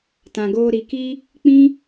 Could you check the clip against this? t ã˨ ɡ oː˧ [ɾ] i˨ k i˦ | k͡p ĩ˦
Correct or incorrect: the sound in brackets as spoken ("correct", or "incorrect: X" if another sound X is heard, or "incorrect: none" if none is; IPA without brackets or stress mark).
correct